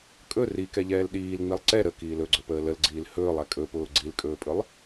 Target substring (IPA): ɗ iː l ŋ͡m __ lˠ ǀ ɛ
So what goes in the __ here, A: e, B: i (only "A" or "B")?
B